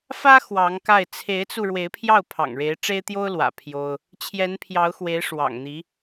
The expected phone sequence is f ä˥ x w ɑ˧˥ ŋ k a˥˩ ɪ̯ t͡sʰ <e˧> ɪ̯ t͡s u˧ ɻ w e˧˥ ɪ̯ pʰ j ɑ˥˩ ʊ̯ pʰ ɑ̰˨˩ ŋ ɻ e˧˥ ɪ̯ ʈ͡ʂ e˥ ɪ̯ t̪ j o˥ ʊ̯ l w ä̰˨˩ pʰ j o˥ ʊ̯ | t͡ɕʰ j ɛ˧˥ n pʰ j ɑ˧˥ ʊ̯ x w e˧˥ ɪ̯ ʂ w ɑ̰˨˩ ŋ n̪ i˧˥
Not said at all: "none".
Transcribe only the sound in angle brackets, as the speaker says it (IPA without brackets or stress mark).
e˧˥